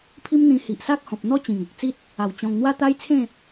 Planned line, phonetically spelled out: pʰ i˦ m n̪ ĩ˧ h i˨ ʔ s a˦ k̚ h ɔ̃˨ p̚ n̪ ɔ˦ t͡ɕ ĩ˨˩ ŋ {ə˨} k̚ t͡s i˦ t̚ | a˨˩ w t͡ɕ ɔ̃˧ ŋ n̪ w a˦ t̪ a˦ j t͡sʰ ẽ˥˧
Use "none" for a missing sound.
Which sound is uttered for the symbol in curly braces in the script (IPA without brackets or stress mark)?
ə˨